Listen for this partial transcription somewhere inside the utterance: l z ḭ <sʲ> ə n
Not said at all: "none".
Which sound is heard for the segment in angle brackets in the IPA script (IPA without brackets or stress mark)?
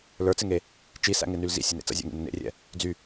sʲ